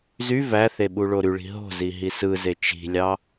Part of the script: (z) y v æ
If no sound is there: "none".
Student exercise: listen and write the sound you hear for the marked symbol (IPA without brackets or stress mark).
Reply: z